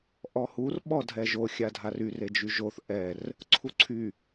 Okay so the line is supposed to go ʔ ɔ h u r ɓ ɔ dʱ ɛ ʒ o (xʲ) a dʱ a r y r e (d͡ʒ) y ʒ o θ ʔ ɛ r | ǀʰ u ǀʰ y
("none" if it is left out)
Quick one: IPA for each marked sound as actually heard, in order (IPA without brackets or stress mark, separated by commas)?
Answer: xʲ, d͡ʒ